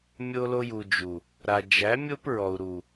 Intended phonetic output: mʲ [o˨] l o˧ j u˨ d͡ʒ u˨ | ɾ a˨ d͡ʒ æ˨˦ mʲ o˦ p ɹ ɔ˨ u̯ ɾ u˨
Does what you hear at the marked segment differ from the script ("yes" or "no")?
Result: yes